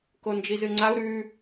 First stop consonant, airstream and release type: plain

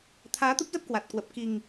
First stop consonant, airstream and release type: aspirated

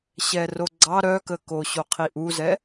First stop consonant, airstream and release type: click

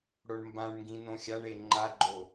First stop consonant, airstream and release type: plain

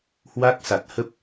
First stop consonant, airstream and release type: plain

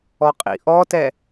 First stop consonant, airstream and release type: ejective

